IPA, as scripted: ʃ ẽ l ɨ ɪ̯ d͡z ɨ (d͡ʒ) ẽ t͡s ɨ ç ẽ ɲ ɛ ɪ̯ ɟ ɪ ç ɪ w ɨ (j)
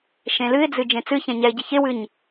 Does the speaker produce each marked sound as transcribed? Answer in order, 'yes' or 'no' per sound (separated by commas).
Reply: yes, no